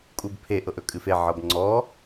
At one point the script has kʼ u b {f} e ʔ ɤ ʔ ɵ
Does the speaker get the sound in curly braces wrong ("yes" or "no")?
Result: yes